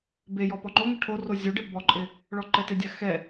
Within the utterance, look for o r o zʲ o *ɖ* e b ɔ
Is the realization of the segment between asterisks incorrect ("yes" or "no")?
no